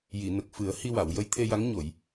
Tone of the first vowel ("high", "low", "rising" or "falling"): low